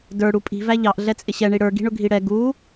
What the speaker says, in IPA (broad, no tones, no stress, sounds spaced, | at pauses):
d ə˞ ɽ u pʼ i̤ v æ ʎ ɑ ʔ ɮ ɛ t͡sʼ ɪ ɕ ɛ ɳ i ɽ ə˞ ɡ i̤ ɳ ʊ ɡʱ i ɽ ɛ ɡ u